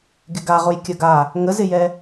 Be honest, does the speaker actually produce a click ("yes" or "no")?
no